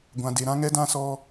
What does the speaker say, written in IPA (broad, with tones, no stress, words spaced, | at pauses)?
ɡʷã˨de˨ ɾã˦ ŋɛ˦dã˦˨ sɔ˦